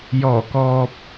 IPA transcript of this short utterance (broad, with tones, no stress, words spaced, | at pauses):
jɔː˨˩kɔː˨p̚